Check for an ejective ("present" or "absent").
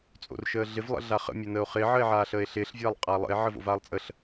present